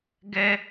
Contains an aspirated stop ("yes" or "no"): no